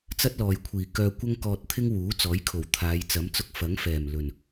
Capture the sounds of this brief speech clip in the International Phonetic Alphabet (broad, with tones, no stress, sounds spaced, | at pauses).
t͡s ɐ˥ t̚ l ɔː˨ j kʷʰ iː˨˩ k œː˧ kʷ ɐ˥ ŋ k ɔː˧ t̚ t̪ʰ ɪ˥ ŋ w uː˨˥ t͡s ɔː˨˥ j kʰ o˨˩ w t̪ʰ aː˨˧ j t͡s ɐ˨˥ m t͡s ʊ˧ k̚ f ɐ˨˥ ŋ f ɛː˨˩ m l ɵ˨˩ n